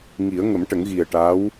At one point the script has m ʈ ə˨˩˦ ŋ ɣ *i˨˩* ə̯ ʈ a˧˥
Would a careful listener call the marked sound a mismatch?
no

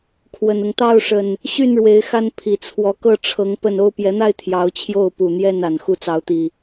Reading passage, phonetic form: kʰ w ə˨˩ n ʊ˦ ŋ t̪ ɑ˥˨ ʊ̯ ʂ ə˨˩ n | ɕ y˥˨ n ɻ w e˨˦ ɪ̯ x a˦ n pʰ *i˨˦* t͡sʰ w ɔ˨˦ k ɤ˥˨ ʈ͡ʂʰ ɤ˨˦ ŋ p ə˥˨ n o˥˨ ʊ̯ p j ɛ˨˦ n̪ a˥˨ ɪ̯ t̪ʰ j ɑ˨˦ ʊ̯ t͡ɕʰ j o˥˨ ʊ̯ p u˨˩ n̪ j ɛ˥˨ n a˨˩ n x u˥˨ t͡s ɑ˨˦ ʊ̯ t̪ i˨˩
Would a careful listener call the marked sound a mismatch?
yes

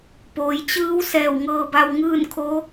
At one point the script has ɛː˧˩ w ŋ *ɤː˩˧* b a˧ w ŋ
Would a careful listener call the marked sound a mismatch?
yes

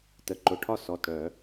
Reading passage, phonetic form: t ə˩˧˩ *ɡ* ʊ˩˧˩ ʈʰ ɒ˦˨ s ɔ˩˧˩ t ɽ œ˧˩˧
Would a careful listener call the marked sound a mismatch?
yes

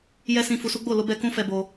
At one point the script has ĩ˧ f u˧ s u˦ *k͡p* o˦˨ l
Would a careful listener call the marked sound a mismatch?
yes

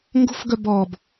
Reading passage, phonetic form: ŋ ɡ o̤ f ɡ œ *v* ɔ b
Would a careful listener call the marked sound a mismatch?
yes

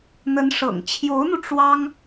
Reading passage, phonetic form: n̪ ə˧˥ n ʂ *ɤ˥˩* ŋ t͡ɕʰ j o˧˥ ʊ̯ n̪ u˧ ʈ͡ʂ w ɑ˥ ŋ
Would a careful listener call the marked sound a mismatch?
yes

